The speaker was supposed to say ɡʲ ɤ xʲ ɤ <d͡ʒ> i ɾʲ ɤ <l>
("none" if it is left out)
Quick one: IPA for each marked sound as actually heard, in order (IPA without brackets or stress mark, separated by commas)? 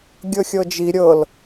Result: d͡ʒ, l